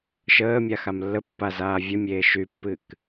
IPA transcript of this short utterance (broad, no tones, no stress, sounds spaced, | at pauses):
ʃ əː mʲ a x a m lː ə pː a z aː vʲ ə mʲ eː ʃ y pː ɨ k